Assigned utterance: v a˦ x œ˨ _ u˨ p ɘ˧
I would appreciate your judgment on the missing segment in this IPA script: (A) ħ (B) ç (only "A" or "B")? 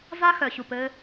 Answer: B